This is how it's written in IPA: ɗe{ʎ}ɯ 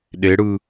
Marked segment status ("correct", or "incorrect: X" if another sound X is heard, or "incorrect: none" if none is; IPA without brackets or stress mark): incorrect: ɽ